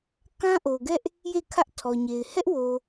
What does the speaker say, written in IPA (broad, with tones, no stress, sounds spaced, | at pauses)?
k ã˦ ʔ o˨ ɡ ɛ˦ ʔ | j e˦˨ kʰ ä˦ ʔ tʰ ɔ˨ ɲ e˨ ɪ̯ h ɛ˦ ʔ w o˨